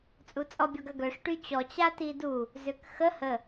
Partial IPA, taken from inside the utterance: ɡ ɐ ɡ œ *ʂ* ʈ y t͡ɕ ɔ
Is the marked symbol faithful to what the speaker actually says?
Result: yes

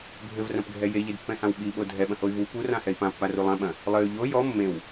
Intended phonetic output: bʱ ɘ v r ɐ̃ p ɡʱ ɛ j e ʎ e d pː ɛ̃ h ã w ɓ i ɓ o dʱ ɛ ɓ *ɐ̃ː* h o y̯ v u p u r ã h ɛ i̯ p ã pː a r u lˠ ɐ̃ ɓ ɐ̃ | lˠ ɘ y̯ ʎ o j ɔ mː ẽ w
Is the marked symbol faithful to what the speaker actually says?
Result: no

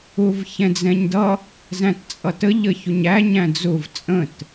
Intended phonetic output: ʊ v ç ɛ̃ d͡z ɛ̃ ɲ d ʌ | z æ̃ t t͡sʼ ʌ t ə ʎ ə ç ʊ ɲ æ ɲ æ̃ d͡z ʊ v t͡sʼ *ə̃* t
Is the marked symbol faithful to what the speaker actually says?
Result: yes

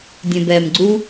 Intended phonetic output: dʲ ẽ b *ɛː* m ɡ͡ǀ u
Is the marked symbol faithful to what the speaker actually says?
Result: yes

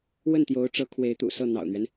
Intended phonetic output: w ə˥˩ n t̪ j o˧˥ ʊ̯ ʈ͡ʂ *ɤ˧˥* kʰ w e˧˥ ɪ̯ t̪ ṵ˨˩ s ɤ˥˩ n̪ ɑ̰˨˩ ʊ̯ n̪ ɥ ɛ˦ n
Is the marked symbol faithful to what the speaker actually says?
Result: yes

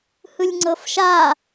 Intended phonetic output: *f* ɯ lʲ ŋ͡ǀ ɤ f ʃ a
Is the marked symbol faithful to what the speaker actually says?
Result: no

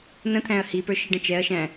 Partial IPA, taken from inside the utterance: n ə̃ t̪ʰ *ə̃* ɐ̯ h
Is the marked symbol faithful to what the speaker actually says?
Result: no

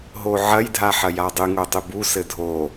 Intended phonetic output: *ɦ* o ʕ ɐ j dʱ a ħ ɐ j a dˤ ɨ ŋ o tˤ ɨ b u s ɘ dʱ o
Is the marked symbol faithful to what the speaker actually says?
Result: yes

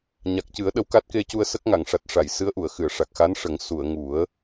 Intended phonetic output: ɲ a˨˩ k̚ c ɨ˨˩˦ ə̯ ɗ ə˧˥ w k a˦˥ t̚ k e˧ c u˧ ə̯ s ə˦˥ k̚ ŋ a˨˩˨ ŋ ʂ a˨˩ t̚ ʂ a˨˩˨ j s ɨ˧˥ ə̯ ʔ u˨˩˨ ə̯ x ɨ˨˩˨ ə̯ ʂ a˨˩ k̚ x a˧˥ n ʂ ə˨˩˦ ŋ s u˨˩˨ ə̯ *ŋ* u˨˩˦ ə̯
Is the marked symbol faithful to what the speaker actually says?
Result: yes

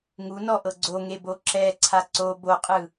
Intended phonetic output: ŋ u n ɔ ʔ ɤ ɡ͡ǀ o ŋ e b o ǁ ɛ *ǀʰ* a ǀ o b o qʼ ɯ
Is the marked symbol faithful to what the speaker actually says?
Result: yes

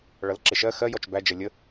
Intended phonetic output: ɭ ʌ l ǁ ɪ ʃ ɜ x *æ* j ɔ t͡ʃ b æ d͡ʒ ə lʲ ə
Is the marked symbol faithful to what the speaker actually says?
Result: no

